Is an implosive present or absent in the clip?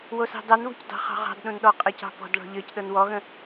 present